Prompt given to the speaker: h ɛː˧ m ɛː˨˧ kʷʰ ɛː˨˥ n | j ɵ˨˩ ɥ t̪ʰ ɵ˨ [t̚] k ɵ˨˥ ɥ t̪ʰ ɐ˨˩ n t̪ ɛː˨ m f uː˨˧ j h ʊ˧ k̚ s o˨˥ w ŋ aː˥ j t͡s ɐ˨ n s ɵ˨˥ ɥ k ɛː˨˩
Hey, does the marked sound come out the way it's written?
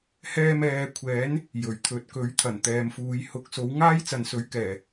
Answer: yes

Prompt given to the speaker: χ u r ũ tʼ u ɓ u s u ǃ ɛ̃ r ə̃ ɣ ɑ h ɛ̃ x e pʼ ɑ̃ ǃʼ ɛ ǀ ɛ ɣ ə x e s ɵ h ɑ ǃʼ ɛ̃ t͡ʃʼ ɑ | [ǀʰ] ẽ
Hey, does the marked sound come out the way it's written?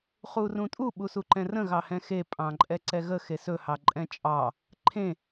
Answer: no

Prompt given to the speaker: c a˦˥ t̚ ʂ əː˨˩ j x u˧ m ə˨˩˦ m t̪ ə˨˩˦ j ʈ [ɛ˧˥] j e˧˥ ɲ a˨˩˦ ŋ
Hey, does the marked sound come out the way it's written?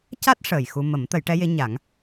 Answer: yes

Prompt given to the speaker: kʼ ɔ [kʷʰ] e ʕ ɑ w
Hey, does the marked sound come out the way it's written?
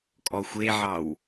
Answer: no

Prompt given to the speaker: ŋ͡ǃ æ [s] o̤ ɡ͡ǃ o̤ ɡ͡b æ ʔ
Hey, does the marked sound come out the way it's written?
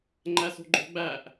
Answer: yes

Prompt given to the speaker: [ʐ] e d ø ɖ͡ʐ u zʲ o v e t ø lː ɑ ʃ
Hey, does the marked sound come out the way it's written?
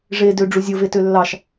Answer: yes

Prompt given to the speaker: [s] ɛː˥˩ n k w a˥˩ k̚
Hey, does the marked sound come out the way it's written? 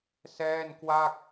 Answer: yes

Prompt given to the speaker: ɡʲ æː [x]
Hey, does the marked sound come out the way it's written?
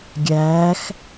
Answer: yes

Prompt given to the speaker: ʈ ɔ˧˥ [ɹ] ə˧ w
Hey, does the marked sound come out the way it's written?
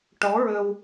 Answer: yes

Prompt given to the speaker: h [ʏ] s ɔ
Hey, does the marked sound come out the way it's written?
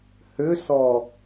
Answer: yes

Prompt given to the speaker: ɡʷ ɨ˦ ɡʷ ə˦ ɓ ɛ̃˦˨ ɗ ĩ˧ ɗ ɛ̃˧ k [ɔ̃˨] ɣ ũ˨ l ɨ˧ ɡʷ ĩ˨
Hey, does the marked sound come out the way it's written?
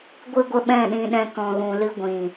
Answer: yes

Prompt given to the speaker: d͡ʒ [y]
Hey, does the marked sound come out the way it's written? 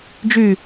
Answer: yes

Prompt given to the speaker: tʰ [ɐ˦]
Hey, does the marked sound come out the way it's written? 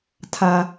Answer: no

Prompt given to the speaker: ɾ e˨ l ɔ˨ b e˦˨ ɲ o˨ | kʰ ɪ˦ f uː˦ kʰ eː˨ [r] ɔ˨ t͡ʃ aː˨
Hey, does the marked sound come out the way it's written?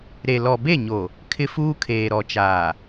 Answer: no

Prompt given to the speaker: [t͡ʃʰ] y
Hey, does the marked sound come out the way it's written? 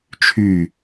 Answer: yes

